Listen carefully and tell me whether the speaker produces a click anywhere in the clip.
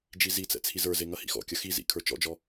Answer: no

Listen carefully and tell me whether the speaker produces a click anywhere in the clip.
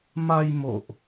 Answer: no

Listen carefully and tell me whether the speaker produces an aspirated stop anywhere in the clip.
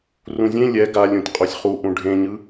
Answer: no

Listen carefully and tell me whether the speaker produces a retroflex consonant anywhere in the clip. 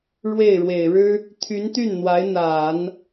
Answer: yes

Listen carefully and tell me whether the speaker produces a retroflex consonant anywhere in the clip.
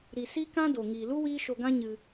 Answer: no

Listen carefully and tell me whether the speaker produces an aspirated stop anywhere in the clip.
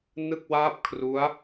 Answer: yes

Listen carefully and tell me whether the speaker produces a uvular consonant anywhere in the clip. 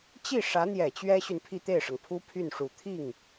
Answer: no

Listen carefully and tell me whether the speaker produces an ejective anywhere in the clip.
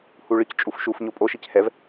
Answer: yes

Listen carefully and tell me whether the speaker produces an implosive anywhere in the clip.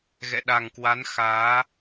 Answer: yes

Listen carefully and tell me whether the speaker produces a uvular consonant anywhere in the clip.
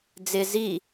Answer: no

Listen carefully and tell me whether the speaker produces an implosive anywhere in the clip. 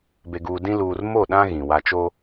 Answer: yes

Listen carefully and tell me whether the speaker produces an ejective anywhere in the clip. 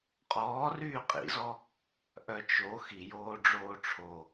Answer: yes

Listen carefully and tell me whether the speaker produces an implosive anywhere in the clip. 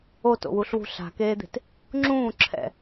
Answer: no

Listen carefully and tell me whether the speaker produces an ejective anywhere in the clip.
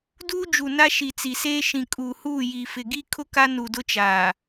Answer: yes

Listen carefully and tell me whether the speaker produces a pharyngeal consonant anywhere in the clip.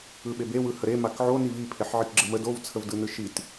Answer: yes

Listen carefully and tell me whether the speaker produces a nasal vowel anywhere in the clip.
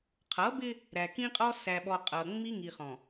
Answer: yes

